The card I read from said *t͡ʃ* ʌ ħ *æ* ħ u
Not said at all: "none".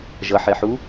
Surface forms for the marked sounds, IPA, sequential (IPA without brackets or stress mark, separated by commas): ʒ, ɛ